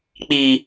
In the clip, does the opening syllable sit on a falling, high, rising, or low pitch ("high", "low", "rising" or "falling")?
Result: high